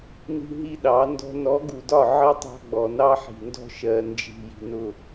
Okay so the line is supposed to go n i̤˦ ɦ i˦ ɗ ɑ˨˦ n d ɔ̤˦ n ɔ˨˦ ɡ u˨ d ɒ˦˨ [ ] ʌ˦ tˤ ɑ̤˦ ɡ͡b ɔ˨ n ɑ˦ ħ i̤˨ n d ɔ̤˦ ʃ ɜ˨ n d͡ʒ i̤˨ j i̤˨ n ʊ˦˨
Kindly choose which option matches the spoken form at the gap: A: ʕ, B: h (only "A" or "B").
A